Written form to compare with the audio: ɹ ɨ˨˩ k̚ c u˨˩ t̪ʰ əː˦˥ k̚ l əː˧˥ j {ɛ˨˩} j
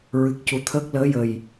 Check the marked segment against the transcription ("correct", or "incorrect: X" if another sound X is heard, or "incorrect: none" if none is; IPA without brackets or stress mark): incorrect: ə˨˩